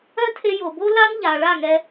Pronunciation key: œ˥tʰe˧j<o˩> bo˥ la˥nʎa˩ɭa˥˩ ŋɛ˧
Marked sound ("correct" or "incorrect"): correct